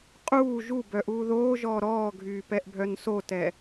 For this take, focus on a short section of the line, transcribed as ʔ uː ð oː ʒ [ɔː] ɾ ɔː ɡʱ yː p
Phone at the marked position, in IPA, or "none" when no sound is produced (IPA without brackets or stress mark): ɔː